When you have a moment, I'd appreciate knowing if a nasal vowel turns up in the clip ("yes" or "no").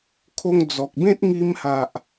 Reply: yes